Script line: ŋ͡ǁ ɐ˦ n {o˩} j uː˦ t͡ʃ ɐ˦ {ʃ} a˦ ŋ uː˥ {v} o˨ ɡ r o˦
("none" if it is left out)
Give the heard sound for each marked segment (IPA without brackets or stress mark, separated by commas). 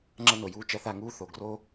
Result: o˩, θ, θ